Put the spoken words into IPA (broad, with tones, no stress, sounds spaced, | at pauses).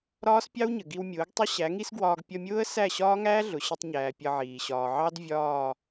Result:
ɾ ɒː˦ s pʲ ɑ˦ w ɲ ə˨ ɡ i˧ w mʲ ʊː˨˦ ɡ tˤ ə˦ ɕ æ˨˦ ŋ i˦ s ɡ w ɒː˧ ɡ pʲ ʌ˧ mʲ ʊː˦ ə̯ s æ˦˨ ɕ ɒː˦ ŋ æː˦ ɮ ʊ˨ ɕ ə˧ tˤ ɲ æː˨ pʲ ʌ˧ ʕ iː˨ ɕ ɒː˨ ʕ ɑ˦ d vʲ ɒː˦˨